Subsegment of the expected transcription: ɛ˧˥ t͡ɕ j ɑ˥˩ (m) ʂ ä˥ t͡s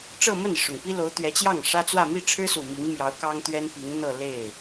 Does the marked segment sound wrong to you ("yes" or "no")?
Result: yes